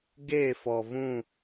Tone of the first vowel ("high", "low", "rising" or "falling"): falling